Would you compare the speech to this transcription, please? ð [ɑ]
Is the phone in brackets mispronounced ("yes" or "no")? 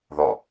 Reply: yes